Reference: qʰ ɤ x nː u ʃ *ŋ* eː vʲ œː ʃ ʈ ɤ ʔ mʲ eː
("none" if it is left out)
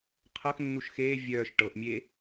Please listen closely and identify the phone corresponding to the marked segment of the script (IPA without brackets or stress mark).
x